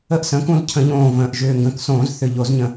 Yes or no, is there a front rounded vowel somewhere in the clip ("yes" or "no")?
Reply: yes